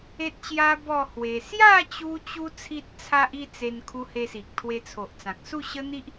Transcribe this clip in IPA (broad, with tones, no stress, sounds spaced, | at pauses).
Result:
e˦ t̚ ɕ j a˦ b ɔ˥˧ h w e˧ s j a˥˧ t͡ɕ u˦ t͡ɕ u˦ t͡sʰ i˦ t̚ t͡sʰ a˦ ʔ i˥˧ t͡s e˧ n kʰ u˧ h e˧ s i˨ k̚ t̪ʰ w e˧ t͡sʰ o˨ ʔ t͡s ã˨ k̚ s u˥˧ ɕ ə˦ n̪ i˦ ʔ